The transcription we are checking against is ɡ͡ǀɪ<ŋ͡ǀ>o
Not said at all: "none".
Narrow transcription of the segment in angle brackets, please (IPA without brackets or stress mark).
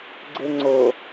ŋ͡ǀ